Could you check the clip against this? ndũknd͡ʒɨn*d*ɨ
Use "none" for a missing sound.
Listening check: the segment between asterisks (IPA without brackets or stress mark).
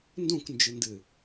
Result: d